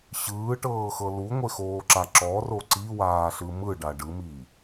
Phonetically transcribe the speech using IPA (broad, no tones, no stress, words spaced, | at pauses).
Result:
ɕɯːʈɤːxɤ luŋʷexoːǁa ǁɔro ǀiwaːɬɯ mɯɖa ɖɯmiː